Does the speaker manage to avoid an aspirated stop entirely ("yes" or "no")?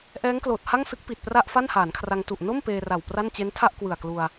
no